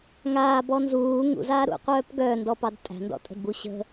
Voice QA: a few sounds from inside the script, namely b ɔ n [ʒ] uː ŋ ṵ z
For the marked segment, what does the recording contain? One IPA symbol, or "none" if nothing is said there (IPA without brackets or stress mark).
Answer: z